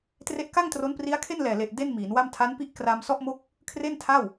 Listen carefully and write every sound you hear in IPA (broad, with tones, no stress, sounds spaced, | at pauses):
t r e˦˥ ʔ k a˥˩ ŋ t r o˦˥ n p r i˦˥ a̯ kʰ e˥˩ n l ɛː˨˩ l e˨˩ ʔ d e˥˩ n m iː˩˦ n w a˥˩ m tʰ a˦˥ n p i˥˩ ʔ k r a˧ m s ɔ˥˩ ʔ m o˥˩ k̚ | kʰ r e˥˩ n tʰ a˥˩ w